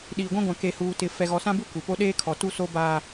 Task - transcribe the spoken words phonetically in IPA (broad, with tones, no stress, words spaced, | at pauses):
ɗiː˨ɡʷã˦ɡʷã˨ ke˨huː˨tɪ˨ fɛ˨ɣɔ˨sã˦bu˦ kʷi˨po˦ ɗeː˦kʰɔ˨ tu˦so˦baː˦